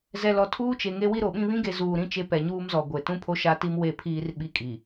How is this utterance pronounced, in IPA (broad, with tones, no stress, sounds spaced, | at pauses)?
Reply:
z ɛ˨ l ɔ˨ tʰ uː˦ t͡ʃ e˨ ŋ e˦ w i˦ ɾ o˨ ɓ ĩ˦ β ĩ˦ ɡ e˨ z uː˨ ɾ ĩ˦ t͡ʃ e˦ p ɛ˨ ɲ uː˦ m z ɔ˨ ɡʷ e˨ t ũ˦ pʰ o˦ ʃ a˦ t i˦ m w e˦˨ pʰ iː˦ r ɓ i˦ kʼ i˨